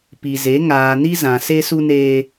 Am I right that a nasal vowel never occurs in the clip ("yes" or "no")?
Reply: no